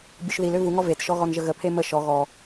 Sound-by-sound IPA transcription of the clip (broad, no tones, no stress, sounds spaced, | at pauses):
bʲ u ʃ ð i l ø v u ŋ ɔ v e t ʃ ɔ ɣ ɔ n ʒ ə ɣ ə pʰ e m ə ʃ ɔ ɣ ɔ